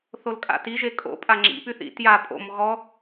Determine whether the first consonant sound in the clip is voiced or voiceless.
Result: voiceless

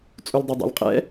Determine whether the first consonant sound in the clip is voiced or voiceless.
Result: voiceless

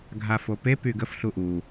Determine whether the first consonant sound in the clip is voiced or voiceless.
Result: voiced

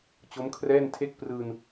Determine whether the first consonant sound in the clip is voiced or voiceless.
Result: voiceless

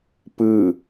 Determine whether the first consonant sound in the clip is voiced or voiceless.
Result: voiceless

